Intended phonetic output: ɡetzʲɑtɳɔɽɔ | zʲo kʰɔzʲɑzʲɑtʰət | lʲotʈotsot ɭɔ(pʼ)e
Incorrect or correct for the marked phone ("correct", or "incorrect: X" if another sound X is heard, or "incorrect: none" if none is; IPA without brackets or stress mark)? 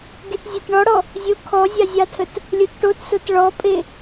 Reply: correct